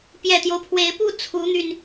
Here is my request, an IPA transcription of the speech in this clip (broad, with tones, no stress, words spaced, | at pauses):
pjɛ˨˩t̪jo˦ʊ̯pʰwe˧˥ɪ̯pu˥˩ t͡sʰu˧˥n̪y˧n